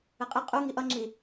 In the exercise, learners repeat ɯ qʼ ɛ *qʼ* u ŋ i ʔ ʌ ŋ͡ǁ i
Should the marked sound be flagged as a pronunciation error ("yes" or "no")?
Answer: no